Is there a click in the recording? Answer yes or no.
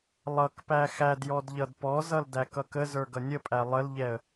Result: no